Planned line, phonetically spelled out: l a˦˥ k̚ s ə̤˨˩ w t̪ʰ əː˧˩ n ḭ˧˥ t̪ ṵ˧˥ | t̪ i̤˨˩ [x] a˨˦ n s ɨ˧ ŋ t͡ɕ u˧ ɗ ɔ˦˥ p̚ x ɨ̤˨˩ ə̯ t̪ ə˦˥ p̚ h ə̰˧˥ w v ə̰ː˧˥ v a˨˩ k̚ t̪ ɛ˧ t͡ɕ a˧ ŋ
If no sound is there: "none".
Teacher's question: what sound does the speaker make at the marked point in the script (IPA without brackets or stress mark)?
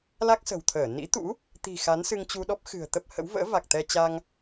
x